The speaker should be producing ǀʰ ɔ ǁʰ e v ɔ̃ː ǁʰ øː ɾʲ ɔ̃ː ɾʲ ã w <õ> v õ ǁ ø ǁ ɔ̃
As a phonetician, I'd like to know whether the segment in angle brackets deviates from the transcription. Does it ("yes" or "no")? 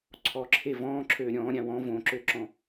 yes